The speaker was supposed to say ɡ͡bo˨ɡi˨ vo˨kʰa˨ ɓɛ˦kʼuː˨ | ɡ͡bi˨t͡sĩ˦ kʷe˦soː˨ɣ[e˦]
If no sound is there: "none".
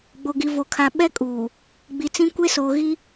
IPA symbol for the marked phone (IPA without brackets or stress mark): i˦